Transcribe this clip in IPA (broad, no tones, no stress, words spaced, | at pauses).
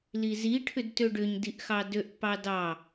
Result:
lizi ʈʰʏdtøɖʏɲ diʔxɑdøʔ pɑdɑ